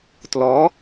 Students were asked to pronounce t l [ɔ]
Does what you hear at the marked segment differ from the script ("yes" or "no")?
no